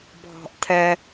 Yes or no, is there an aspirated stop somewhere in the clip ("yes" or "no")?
yes